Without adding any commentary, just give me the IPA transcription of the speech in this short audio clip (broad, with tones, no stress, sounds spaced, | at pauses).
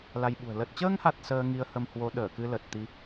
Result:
l a˧ j ɓ ṳ˨˩ ə̯ l ə˨˩ t̚ t͡ɕ əː˧ ŋ h a˨˩ t̚ s əː˧ ŋ i˧ ə̯ h ə˧ m h w o˨˦ ɗ əː˧˩ k ɨ˧ l ə˨˩ t̚ t̪ i˨˦